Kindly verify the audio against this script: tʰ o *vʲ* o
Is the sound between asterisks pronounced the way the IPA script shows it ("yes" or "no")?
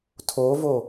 no